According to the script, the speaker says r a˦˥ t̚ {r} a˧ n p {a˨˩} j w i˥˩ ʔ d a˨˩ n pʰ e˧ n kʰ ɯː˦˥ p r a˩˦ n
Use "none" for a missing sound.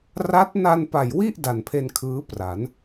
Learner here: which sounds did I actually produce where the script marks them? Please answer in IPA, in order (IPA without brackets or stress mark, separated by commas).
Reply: n, a˨˩